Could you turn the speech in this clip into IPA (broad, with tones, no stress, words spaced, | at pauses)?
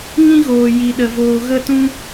ŋĩ˦ɣoː˨ ji˨ɗə˨ voː˨ɣə˦˨tũ˦